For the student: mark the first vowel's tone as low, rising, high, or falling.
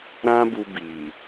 high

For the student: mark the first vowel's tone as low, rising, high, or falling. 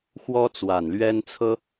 high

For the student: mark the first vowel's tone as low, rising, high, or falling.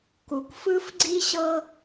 low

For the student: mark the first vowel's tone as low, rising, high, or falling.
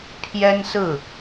high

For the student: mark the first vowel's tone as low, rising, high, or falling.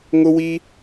high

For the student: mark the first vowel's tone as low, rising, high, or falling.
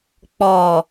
low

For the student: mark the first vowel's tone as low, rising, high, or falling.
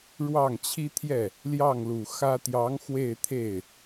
falling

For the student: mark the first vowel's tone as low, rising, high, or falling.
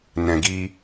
low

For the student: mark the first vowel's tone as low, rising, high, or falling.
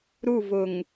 falling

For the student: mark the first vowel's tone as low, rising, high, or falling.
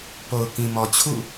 low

